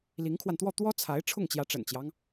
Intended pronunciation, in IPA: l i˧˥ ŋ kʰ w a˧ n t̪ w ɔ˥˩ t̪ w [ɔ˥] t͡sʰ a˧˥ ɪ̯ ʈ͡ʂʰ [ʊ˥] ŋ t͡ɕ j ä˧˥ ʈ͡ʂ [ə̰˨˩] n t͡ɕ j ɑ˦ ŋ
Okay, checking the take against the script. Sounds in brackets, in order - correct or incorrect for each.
correct, incorrect: ʊ˥˩, correct

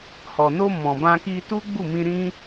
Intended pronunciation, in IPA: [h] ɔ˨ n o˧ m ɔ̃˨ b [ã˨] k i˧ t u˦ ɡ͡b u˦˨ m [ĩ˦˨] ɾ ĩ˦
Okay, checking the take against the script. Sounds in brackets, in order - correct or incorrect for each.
correct, incorrect: ã˧, incorrect: ĩ˧

